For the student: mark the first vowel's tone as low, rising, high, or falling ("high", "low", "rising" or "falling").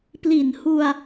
low